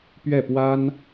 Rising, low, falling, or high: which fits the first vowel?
falling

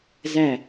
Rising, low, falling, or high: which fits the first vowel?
falling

